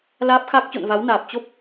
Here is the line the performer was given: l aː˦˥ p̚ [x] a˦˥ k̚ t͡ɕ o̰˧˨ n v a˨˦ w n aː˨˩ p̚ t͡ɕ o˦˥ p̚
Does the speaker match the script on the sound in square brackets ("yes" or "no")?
yes